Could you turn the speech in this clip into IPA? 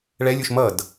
ɭɛlʲuʃ mʌd

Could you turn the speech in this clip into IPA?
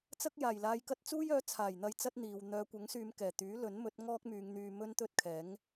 t͡sɐ˥k̚jaː˨˩jlaː˧jkɐ˥t̚ t͡suː˥jœː˨˥t͡sʰaː˨˩jn̪ɐ˧j t͡sɐ˥t̚n̪iː˨w n̪œː˨˧kʷɐ˨˥ŋsyː˨˧m kɛː˨˩t̪yː˨˥ lɵ˨˥nmɵ˨˥t̚ ŋɔː˥k̚myː˨˧ŋn̪yː˧ mɵ˥nt̪ɵ˥t̚kʰɛː˨˥ŋ

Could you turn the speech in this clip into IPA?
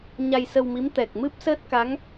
ɲa˧jsə˧wmi˧˥m t̪ɛ˨˩k̚ mɨ˦˥p̚səː˦˥t̚ ka˧˥ŋ

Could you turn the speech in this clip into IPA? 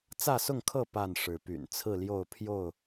t͡sä˥˨sʊ˥˨ŋkʰɤ˥˨ pa˥˨n ʂɻ̩˨˦py̰˨˩n t͡sʰɹ̩˥˨ljo˥˨ʊ̯ pʰjo˥˨ʊ̯

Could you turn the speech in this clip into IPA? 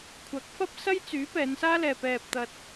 kʷʰɐ˨˥k̚fɐ˥p̚ sɐ˥jt͡syː˨˥ pɛː˨˧nsaː˥lɛː˨ pɛː˨p̚t̪ɐ˨t̚

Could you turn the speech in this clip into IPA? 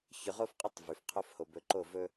çɵ˨ʁo˦fqʼɵ˦tˤ vy˨fqʰo˦f ho˨bɵ˨˦ǃo˦˨vɵ˦

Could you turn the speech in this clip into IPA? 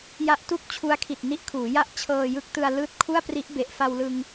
ja˦˥ʔ tu˥˩k̚t͡ɕʰu˦˥a̯kʰi˨˩t̚ ni˦˥ʔkʰuː˩˦ja˥˩ʔ t͡ɕʰɤː˧jɯ˦˥k̚tɯ˧a̯ lɯː˦˥t̚ kʰu˥˩a̯pri˦˥ʔ be˨˩ʔfa˧wlɯ˧ŋ

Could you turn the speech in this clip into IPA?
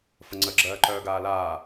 fəŋ͡ǀə ɡ͡ǁɜːǃœːɡaːlaː

